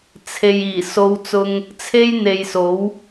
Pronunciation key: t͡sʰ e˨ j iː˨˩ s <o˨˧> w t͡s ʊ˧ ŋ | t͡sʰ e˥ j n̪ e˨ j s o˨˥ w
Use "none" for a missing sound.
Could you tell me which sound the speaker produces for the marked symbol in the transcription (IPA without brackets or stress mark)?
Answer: o˨˧